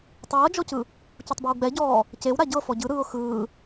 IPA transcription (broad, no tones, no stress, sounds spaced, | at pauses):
tˤ ɤː d͡ʒ ɔ c ɯ | c u tˤ b a w ɡ͡b ɛ ɟ ɔː | c e w ɾ a ɟ ɤ f ɔ ɟ ɯ ɾ ɯː ʊ̯ x ɯː